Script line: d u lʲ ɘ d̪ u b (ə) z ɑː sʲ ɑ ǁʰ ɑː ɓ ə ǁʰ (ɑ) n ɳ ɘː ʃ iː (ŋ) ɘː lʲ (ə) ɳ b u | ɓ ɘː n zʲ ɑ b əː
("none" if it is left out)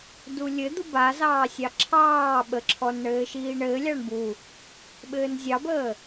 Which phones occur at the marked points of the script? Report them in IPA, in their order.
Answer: a, ɔ, ɳ, ɑ

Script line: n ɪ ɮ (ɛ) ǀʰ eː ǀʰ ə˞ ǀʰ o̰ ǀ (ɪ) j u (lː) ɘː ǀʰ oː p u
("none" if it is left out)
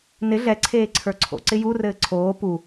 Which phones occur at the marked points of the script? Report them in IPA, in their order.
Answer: ɛ, ɪ, r

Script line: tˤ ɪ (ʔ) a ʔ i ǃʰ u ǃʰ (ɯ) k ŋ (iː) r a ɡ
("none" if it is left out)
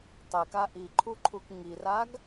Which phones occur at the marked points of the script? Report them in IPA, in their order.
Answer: k, u, i

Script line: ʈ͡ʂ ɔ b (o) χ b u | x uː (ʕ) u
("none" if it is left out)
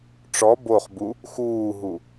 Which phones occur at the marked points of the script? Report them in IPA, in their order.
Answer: o, ɦ

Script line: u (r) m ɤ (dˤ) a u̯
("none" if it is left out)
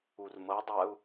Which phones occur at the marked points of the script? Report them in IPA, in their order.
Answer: r, dˤ

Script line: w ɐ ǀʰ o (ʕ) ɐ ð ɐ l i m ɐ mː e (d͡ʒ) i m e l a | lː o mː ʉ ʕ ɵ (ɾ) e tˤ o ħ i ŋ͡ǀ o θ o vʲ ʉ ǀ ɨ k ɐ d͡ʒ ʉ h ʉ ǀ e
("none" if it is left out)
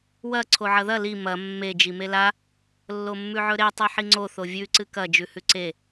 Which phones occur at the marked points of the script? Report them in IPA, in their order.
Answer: ʕ, d͡ʒ, ɾ

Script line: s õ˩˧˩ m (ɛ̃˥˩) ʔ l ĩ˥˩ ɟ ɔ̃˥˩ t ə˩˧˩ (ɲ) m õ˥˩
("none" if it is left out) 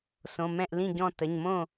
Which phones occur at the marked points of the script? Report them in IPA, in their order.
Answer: ɛ̃˥˩, ɲ

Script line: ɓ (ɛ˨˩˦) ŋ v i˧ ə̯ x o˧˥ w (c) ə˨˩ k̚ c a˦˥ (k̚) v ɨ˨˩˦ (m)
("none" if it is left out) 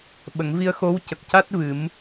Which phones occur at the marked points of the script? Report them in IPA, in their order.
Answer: ə˨˩˦, c, t̚, m

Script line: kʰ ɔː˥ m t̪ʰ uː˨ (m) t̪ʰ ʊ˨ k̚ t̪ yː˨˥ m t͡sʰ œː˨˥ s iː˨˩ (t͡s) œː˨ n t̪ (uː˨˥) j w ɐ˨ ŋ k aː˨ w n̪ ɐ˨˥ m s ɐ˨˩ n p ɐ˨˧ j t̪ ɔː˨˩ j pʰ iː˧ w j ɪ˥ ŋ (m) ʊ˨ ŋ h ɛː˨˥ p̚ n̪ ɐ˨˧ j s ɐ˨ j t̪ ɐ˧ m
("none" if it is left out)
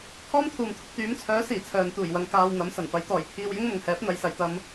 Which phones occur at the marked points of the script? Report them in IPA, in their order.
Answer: m, t͡sʰ, uː˨˩, m

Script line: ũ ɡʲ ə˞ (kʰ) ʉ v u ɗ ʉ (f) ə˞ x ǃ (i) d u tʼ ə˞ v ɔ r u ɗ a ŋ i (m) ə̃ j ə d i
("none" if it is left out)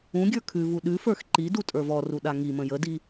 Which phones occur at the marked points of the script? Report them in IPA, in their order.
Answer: kʰ, f, i, m

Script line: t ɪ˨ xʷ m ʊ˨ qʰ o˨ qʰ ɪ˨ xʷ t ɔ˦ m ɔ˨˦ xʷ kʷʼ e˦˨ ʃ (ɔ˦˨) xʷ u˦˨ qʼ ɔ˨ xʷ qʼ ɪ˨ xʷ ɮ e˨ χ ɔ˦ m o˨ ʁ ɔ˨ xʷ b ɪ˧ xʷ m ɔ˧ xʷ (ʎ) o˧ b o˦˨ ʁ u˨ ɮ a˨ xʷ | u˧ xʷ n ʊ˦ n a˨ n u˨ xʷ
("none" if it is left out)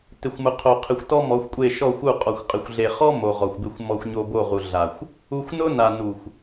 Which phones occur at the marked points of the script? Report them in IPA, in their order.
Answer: ɔ˦˨, ɲ

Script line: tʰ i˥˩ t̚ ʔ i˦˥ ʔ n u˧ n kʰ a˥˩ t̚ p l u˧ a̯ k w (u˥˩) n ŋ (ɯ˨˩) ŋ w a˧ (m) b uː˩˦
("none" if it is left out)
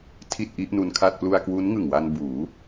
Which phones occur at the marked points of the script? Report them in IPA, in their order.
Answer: u˦˥, ɯ˨˩, n

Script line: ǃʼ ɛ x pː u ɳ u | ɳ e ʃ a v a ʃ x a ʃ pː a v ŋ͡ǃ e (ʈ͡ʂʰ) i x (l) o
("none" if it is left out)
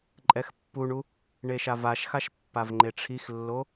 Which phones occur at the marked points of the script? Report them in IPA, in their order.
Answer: ʈ͡ʂʰ, lː

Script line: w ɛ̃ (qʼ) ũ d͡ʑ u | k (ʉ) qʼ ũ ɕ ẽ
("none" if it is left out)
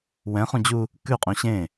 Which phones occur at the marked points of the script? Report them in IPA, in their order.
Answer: χ, ʉ

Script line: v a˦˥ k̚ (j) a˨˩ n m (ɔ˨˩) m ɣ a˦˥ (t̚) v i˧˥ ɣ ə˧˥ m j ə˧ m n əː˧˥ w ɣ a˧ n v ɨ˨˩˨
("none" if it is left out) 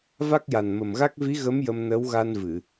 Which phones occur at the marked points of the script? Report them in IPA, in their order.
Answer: j, ə˨˩, k̚

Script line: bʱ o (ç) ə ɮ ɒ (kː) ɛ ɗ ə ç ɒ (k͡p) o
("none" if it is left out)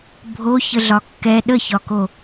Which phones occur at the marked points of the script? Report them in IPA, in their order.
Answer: ç, kː, k

